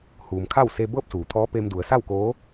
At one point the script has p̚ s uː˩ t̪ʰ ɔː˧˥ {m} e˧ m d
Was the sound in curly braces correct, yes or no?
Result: no